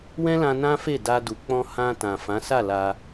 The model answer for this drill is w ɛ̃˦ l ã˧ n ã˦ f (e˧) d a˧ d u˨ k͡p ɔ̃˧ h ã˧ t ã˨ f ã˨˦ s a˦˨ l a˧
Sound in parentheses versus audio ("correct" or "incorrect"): incorrect